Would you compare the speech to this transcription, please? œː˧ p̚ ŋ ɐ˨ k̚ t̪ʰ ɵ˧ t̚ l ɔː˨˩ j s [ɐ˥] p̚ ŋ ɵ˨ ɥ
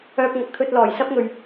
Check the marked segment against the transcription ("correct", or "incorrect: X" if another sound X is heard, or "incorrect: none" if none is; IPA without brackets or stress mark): correct